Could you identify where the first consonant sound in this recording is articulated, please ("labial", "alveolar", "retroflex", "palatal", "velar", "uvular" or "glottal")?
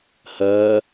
glottal